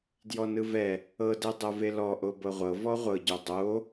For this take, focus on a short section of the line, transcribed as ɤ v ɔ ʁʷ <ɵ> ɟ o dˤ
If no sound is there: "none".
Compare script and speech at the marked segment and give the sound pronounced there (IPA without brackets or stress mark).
ɤ